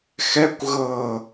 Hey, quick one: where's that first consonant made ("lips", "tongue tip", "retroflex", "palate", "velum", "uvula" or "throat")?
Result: velum